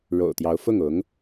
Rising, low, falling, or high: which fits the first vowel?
low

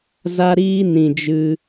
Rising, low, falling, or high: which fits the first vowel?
high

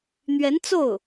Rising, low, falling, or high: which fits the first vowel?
rising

